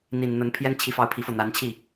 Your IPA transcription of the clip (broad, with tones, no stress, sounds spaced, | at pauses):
n̪ i˨˩ n n̪ ə˧˥ n pʰ j ɛ˥ n t͡ɕʰ i˧˥ f ɑ˧˥ ʊ̯ pʰ i˨˩ f ɤ˥˩ n̪ a˧˥ n t͡ɕʰ i˥˩